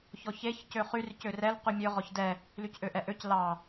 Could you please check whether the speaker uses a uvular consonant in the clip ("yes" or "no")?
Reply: yes